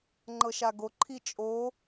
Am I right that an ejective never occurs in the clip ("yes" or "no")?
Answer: no